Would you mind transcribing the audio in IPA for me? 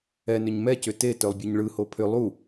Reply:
ɛ n ʏ ɲ m ɛ c ʏ t e t œ lˠ bʲ ɯ ɲ ɭ ɯ h o pʰ ʏ lˠ u

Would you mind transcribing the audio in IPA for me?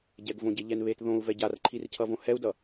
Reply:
ɟ ɛ ɡ v õ ɟ e ʎ ɛ n β e t ð õ u̯ v ɛ ɟ a r ǃʰ i r cʰ ʌ v õ h ɛ u̯ d ʌ

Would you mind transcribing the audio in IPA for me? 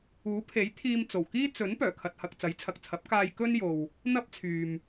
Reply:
uː˨˥ pʰ e˨˥ j t̪ʰ iː˧ m t͡s o˨˩ w k iː˥ t͡s ɵ˨˥ n p œː˨˩ kʰ ɐ˨ t̚ h ɐ˨ k̚ t͡s ɐ˨˥ j t͡sʰ ɐ˨ k̚ t͡sʰ ɐ˨˥ p̚ k aː˧ j k ɵ˥ n j o˨ w | n̪ ɐ˥ p̚ t͡sʰ yː˨ m

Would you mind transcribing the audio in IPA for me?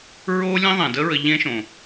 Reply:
ɹ o˦ lʲ ẽ˦ ðˤ ɛ̃˨ d ə˦ ɹ ə˧ ʎ ẽ˦ ʃ õ˨

